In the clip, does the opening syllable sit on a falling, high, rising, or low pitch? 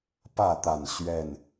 falling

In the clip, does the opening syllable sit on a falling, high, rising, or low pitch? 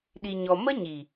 low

